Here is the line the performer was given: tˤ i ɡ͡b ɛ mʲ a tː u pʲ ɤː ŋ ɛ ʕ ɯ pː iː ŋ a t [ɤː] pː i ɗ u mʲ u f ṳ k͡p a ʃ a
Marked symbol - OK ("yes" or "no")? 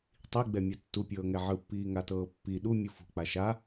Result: yes